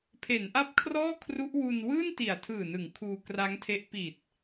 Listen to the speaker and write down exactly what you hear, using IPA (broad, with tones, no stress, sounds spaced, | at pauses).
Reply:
pʰ e˩˦ n ʔ a˦˥ p̚ kʰ r ɔː˥˩ kʰ r u˦˥ ʔ w u˧ n w ɯː˥˩ n t i˨˩ a̯ tʰ ɯː˨˩ n ɯ˩˦ ŋ kʰ uː˧ k r a˦˥ ŋ tʰ e˦˥ ʔ p i˨˩ t̚